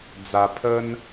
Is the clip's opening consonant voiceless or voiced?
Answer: voiced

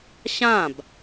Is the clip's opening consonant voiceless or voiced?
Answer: voiceless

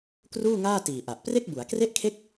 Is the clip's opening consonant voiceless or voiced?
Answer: voiceless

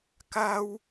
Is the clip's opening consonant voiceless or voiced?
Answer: voiceless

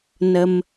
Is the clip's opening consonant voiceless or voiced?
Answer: voiced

